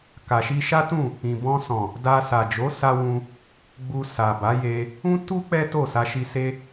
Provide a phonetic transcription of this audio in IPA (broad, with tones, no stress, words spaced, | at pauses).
ka˨ʃi˧ʃa˦tũ˦˨ | ĩ˨bɔ̃˧sɔ̃˨ | da˧ sa˨d͡ʒo˨˦sa˧ wũ˧ | ɡ͡bu˧sa˨ba˨˦je˧ | ũ˦tu˦ k͡pɛ˦to˦˨sa˧ʃi˧ se˧